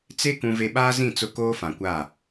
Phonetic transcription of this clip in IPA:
t͡s e˦ k ũ˦ v e˦ ɓ aː˦ z ĩ˦˨ t͡s ʊ˦ k oː˦ f ã˨ kʷ aː˦˨

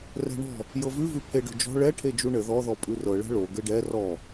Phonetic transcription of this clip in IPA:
r ɛ̤ ɳ ɔ̤ | j ɤ v ʉ v ʉ pʰ e ɖ o̤ d͡ʒ ɔ̤ ɭ ɛ ʈʰ e d͡ʒ u ɳ ɘ ð ɔ ð ɔ pʼ ʉ r ɤ ɭ ɛ̤ ɭ o ɡ ɘ ɖ ɛ r ɔ

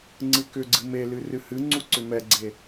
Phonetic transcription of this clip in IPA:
ŋ͡ǀ ɨ k ʏ ɡ͡ǀ ɨ m e l ɨ r ɨ h ɨ ŋ͡ǀ u ǀ ʏ m ɛ ɡ͡ǀ e

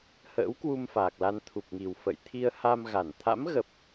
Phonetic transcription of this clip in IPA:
h ə̰ː˧˥ w k w u˧ m f aː˨˩ k̚ l a˧ n t̪ʰ u˨˩ p̚ ŋ i˨˩ w f ə̰˧˨ j t̪ʰ i˧ ə̯ h a˧ m ɣ a˧˩ n t̪ʰ a̰˧˥ m ɣ ə˨˩ p̚

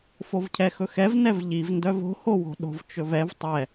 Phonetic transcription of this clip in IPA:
f o v cʰ ɛ x ɵ x ɛ v n ɛ v ʎ i v n d œ v o̤ h o w o̤ ɗ o̤ v t͡ʃ ɵ v ɛ v tˤ ɛ

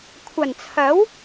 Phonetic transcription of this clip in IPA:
kʷʰ ɐ˨˩ n t͡sʰ ɐ˨˥ w

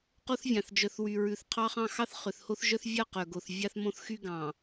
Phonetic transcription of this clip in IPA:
q o˦ θ vʲ ɑ̃˨ θ d͡ʒ œ˨ θ w y˨ ɹ ʉ˨ θ qʰ ɑ˦ χ ɑ̃˦ x ɑ˦ θ χ ø˨ θ h o˦ θ ʒ œ˦ θ vʲ ɑ˦˨ q œ˨ ɡ o˨ θ vʲ ɑ˦ θ m õ˦ θ x y˦ ɡ ɑ̃˨

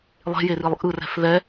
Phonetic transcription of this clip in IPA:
lˠ e̤ j e r i lˠ ʔ ɯ r ɛ̤ f ð ɛ

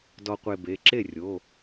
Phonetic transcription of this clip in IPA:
d ɔ˧ qʷ e˧ b e˩˧˩ ǁ e˥˩ rʲ o˩˧˩

